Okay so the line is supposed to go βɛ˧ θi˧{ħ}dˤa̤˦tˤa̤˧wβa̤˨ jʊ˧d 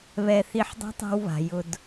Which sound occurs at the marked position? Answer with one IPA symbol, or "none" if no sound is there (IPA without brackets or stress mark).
ħ